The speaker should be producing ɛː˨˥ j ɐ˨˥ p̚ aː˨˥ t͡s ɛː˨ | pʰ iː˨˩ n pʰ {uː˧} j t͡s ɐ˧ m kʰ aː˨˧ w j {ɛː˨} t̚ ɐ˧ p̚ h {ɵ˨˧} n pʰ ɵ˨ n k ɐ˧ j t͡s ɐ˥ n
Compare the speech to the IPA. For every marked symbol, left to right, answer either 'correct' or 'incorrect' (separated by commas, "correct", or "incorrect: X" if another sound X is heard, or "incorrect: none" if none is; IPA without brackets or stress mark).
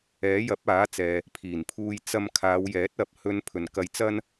correct, incorrect: ɛː˨˥, correct